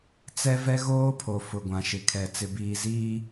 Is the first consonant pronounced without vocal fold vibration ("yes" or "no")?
yes